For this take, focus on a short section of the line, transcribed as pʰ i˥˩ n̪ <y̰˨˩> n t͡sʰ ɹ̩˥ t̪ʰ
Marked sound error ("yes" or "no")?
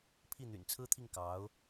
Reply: no